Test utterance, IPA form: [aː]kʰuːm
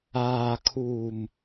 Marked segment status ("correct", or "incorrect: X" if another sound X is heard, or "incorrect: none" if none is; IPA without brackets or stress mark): correct